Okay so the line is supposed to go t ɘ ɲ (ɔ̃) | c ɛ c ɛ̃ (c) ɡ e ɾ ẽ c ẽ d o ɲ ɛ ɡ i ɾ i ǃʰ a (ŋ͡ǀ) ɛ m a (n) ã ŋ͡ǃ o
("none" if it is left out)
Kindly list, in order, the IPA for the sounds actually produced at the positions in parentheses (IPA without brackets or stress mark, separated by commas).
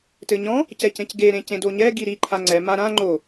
ɔ̃, c, ŋ͡ǀ, ɾ